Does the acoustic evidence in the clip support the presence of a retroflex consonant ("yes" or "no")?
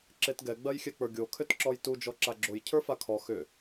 no